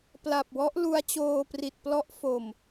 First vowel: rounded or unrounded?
unrounded